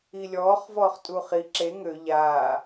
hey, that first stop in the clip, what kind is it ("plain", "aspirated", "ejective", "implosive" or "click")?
ejective